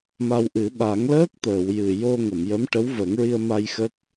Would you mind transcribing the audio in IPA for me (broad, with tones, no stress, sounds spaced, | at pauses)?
m a˧ w ʔ ɨ˨˩˦ ɓ a˨˩˦ ŋ l əː˦˥ k̚ t̪ əː˨˩˨ w j ɨ˨˩ j o˧ ŋ ə˨˩˨ m j ə˧˥ m ʈ ə˧˥ w v ə˨˩˦ ŋ ɹ i˧ ə̯ m a˧ j x ə˦˥ k̚